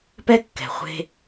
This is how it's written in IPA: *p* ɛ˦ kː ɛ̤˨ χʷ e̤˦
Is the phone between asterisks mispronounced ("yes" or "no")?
no